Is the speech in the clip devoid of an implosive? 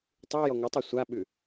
no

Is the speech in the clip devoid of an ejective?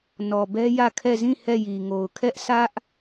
yes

